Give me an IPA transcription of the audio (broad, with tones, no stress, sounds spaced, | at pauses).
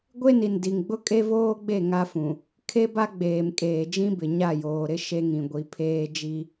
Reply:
ɡʷ e˦ n i˨ n d i˨ ŋ ɡ͡b ʊ˦ kʼ e˦ v oː˦ ɡ͡b e˦˨ ŋ a˦ f ũ˨ | kʰ e˦ b a˦ ɡ͡b eː˨ m kʼ eː˨ d͡ʒ ĩ˦ b ɪ˨ ɲ a˦˨ j oː˨ ɾ ɪ˦ ʃ e˦ ŋ ĩ˨ ɡʷ i˨˦ pʰ eː˦ d͡ʒ i˦